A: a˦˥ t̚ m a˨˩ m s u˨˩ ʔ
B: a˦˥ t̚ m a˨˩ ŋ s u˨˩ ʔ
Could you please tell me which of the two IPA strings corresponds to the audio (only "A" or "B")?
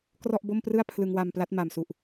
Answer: A